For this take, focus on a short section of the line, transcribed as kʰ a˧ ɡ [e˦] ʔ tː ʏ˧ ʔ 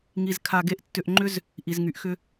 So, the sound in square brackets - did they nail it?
yes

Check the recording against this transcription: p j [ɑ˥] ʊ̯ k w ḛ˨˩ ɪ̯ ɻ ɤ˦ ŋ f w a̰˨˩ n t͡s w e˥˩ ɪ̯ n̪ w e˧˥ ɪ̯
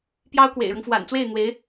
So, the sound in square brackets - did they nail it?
yes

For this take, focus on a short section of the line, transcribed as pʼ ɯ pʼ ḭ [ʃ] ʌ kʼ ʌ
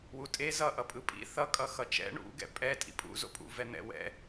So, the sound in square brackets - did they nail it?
no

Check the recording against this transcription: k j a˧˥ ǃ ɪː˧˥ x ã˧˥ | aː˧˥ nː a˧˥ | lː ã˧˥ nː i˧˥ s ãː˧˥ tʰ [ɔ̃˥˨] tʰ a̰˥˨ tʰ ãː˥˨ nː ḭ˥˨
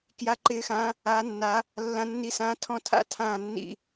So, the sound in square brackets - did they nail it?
yes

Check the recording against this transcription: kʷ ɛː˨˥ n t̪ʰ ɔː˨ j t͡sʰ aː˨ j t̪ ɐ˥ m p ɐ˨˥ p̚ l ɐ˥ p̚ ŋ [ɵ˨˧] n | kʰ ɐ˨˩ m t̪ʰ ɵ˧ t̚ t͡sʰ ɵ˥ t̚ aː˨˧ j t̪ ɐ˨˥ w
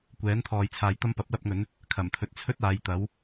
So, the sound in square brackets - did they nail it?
no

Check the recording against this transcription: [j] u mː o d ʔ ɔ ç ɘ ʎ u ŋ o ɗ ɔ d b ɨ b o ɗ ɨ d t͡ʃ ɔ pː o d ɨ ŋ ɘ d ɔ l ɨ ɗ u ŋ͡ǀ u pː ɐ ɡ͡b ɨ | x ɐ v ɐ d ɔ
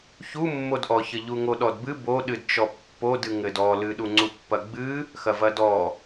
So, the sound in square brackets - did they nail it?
no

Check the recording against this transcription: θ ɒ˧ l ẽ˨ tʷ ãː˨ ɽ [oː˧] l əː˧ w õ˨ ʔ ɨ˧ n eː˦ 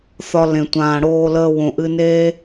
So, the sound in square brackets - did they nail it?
yes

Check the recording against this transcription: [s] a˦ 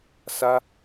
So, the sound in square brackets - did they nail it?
yes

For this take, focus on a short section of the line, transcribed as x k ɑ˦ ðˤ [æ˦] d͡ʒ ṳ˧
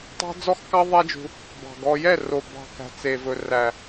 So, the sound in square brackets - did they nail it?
yes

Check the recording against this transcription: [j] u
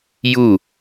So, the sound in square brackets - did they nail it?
yes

